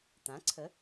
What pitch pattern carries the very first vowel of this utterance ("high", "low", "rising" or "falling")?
rising